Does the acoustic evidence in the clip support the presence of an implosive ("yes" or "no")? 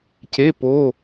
no